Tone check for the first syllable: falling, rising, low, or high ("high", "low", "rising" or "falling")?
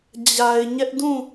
low